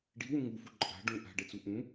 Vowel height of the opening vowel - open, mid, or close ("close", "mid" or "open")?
close